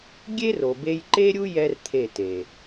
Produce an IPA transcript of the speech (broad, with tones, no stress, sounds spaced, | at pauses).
ɡʲ e˦ r o˨ b e˧ j ǃ e˦ ɾʲ u˦ j ɛ˦ r t̪ʰ e˦˨ t e˨